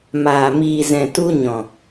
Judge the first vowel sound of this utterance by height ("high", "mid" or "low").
low